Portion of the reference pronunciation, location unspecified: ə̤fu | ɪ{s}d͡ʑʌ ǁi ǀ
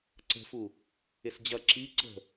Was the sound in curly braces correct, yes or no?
yes